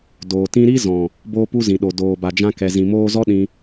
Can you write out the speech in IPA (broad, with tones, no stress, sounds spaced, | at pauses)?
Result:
d oː˨ t ĩ˦ ɾ i˦ z ɔ̃˨ | b oː˦ p u˦ z ĩ˨ ɗ o˨ d oː˨ b a˨ d͡ʒ ã˧ k ɛ˨ z ĩ˨ m oː˧ z ɔ˦ ɗ ĩ˧